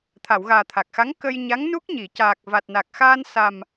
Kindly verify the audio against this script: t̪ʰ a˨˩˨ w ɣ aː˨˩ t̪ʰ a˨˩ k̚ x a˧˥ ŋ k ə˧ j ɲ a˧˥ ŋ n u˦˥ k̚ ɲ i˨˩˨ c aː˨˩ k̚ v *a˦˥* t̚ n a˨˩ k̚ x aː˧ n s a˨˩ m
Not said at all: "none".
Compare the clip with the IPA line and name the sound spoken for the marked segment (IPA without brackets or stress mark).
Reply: a˨˩